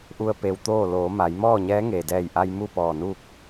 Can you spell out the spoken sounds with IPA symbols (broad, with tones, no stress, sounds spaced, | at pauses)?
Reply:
ʔ u˧ ə̯ p e˧ w t̪ oː˥˨ l oː˩˧ m a˩˧ j m ɔː˥˨ ɲ ɛː˧˥ ŋ eː˩ d ɛː˧˩ j ʔ a˧ j m u˥˨ p ɔː˧˩ n uː˥˨ k̚